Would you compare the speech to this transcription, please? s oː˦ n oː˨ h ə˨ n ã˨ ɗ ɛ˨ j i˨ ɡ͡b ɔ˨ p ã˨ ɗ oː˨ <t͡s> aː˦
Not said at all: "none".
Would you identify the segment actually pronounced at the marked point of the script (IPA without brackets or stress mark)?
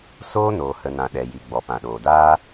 d